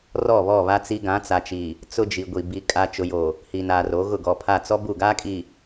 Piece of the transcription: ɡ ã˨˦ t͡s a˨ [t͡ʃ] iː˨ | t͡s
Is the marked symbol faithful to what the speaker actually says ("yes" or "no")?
yes